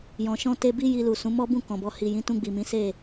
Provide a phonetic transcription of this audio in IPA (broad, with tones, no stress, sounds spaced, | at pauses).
j ɔ̃˨ ʃ ɔ̃˧ t e˧ b i˦ j i˧ l u˨ s ũ˨˦ m ɔ˦ b ũ˦˨ k ɔ̃˨ b ɔ˧ h i˨ j ĩ˨˦ t ũ˧ ɡ͡b i˨ m ĩ˨˦ s e˦˨